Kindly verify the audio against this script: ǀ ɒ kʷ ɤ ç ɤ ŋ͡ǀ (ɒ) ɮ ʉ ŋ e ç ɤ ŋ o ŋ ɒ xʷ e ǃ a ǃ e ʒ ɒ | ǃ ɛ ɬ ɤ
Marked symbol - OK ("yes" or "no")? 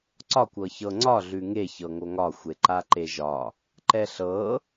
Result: yes